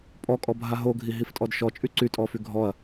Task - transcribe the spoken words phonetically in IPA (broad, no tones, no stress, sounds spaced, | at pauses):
pʼ ɔ kʼ ɔ bʱ a ɦ o ɡʱ i ɦ i f tʼ ɔ d ʃ ɔ t͡ʃʼ y ǀ y tʼ ɔ f y ɡʱ ɔ ɐ̯